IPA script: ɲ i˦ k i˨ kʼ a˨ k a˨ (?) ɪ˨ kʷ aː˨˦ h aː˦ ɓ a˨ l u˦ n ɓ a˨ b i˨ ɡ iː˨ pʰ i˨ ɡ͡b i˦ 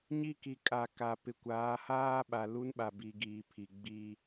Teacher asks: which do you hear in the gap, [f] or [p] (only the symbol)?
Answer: p